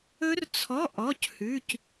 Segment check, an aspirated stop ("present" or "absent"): present